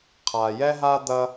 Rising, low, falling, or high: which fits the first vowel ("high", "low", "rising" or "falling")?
low